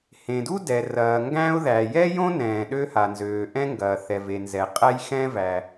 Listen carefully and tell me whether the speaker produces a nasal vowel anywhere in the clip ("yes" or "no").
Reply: yes